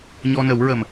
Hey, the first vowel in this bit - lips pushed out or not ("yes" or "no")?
yes